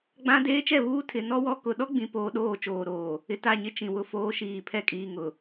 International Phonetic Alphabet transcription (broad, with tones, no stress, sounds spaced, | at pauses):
ɡ͡b ã˦ d eː˦ t͡ʃ ɛ˦˨ β uː˦ tʰ ɪ˨ n ɔ˦ w ɔ˦ k ʊ˨ ɗ ɔ˦ ɡ͡b ĩ˨ p oː˦ ɗ oː˦˨ t͡ʃ oː˨ ɾ oː˨ | ɪ˨ t a˦˨ ɲ ɪ˦ t͡ʃ ĩ˨ w ʊ˦ f oː˦ ʃ iː˨ pʰ ɛ˦ kʼ iː˨ ŋ ʊ˨